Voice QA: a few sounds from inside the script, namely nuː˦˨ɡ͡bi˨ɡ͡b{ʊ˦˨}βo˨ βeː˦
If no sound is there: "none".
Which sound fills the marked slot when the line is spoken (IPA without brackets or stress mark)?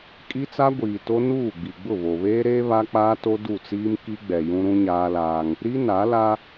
ʊ˦˨